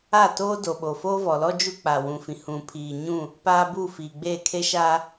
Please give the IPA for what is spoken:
a˦˨toː˦ do˨ɓo˨ foː˦vɔ˨lɔ˦ d͡ʒu˦ k͡pa˨wũ˨fĩ˨ hũ˨pʰiː˨ɲũ˦˨ | paː˦bu˦˨fiː˨ɡ͡beː˦˨ kʰe˦ʃa˦

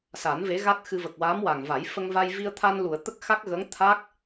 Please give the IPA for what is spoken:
sa˨˩˦n ve˧˥ɣa˦˥t̚xɨ˧və˨˩k̚ waː˧˥mwa˨˩ŋva˨˩˦j fə˧ŋva˧j vi˧ə̯t̪ʰa˧nlu˨˩˨ə̯ t̪ə˦˥k̚xa˦˥k̚ɣə˧˥ŋt̪ʰa˦˥k̚

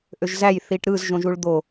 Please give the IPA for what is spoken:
ʔøʒzæj θiʈɾɯz ʒõʒuɭd̪o

